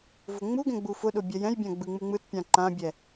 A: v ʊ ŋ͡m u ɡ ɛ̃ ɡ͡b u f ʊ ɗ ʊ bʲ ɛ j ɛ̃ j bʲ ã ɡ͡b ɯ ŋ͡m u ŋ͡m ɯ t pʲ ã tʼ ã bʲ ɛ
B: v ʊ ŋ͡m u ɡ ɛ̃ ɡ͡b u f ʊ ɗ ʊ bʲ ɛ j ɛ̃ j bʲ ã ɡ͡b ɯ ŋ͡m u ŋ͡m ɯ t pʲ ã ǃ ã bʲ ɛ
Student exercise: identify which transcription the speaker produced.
B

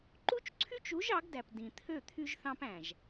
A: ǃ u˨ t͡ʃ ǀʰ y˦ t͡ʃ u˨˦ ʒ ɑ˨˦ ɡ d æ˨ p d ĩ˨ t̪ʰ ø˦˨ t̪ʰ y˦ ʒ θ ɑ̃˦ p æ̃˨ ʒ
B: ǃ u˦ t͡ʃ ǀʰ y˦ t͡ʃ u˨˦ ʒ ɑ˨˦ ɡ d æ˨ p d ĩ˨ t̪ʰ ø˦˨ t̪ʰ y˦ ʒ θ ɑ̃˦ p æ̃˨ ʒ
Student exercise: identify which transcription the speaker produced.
B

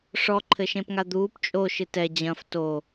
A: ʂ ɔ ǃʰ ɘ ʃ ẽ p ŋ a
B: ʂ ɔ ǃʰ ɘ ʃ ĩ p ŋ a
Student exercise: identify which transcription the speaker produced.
A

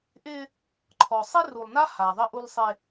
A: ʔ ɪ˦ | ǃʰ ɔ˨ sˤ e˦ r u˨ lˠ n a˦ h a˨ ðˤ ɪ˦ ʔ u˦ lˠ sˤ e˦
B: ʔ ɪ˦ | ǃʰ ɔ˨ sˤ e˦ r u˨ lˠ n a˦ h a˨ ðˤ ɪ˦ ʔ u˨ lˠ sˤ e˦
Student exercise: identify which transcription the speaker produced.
A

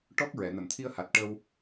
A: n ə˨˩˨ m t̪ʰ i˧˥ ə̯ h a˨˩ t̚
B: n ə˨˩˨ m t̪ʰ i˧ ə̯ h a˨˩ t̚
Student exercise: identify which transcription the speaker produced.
B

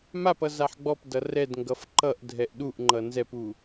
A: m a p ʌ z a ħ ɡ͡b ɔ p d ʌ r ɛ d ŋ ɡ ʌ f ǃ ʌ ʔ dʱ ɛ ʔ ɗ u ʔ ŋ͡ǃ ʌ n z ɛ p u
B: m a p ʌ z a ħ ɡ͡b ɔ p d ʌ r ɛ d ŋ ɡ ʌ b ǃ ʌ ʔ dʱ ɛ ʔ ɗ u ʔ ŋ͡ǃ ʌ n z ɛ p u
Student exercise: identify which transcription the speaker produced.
A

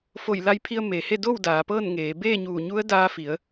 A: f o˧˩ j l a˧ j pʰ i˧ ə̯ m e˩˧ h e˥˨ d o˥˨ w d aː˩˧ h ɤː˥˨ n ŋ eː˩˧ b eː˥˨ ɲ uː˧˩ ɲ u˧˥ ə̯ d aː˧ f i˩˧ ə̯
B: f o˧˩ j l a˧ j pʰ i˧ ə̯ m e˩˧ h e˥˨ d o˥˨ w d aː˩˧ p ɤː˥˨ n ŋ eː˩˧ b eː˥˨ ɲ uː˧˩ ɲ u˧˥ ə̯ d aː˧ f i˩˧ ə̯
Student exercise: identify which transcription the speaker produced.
B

